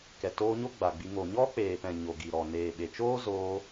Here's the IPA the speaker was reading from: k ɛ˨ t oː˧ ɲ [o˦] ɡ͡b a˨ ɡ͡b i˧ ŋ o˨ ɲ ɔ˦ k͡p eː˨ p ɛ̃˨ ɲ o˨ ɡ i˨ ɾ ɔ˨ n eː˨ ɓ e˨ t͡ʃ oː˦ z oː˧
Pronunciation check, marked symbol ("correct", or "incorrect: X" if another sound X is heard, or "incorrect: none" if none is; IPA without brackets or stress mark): correct